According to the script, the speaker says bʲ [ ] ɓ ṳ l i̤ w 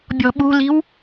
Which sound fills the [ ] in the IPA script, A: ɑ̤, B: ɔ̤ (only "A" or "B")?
B